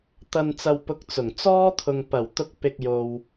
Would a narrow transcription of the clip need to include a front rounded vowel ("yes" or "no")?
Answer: no